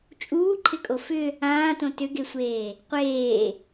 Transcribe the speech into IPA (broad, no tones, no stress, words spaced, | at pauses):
t͡ʃʼuːǃʰɪkʼo fʏ | ãːtõ tʏɡesʷeː | qʷeː